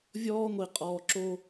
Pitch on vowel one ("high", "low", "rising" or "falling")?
high